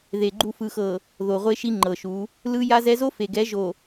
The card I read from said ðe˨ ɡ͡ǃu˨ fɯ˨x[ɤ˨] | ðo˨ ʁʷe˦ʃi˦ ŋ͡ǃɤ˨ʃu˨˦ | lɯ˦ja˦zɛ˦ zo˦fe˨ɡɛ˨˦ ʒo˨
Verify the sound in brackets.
correct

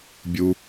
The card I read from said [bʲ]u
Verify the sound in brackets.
correct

